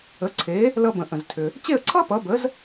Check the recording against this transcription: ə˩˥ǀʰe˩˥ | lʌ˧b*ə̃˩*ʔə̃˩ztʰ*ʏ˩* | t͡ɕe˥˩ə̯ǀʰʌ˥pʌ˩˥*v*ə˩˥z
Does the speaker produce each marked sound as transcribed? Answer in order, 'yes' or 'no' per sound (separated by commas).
yes, yes, no